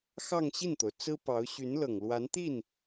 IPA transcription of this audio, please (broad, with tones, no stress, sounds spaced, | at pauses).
x ɑ˥˧ ŋ ɕ i˥˩ n t̪ o˩ ʊ̯ t͡s ɹ̩˥ p ɑ˧˥ ʊ̯ ɕ y˧˥ n l ɤ˨˩ ŋ l w a˧˥ n t̪ i˥˩ n